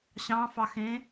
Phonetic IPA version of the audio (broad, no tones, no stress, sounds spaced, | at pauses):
ɕ ɑ̃ f ɑ x ẽ